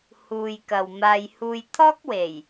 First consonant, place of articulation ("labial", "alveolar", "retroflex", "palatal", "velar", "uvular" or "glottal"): glottal